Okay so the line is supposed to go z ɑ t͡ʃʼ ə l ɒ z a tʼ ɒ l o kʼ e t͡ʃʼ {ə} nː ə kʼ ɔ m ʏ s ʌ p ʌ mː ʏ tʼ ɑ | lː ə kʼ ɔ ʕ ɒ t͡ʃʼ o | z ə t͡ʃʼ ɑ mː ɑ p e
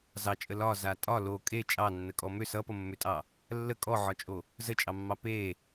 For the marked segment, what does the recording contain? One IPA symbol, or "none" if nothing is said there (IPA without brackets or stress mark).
ɑ